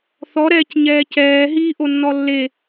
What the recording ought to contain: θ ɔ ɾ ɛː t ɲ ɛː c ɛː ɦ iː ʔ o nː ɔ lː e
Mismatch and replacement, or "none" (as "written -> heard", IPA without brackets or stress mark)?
t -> c